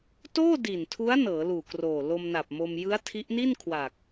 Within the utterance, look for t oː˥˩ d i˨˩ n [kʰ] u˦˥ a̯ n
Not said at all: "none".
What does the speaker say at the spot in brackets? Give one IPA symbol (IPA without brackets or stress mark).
tʰ